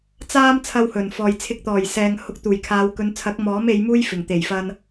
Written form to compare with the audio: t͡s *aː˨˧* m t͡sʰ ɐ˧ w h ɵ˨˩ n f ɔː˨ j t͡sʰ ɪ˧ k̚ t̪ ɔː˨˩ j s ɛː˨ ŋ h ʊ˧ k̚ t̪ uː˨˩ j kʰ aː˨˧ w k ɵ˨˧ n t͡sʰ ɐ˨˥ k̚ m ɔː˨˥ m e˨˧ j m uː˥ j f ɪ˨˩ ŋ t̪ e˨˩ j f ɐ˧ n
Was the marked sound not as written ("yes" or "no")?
yes